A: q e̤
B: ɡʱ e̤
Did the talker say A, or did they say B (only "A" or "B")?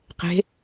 A